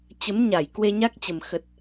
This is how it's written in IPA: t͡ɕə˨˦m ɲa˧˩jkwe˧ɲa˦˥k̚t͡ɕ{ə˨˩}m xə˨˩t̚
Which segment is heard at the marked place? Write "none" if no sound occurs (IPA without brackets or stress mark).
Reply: ə˨˩